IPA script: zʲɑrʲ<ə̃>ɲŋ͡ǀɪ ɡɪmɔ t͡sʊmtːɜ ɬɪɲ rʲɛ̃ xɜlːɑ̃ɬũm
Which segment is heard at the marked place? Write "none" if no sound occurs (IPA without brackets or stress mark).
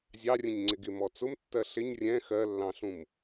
ə̃